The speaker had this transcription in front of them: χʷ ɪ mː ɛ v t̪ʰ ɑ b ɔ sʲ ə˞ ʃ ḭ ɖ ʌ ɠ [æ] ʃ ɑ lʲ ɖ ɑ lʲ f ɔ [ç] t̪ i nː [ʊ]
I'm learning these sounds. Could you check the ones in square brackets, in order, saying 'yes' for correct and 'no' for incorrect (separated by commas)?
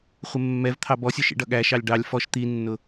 yes, no, yes